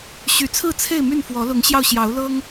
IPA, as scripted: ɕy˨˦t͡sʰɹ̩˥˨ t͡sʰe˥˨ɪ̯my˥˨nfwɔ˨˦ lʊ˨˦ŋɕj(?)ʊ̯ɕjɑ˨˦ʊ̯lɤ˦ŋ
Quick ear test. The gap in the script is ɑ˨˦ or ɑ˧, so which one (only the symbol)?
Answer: ɑ˧